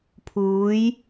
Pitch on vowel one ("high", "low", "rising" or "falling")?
rising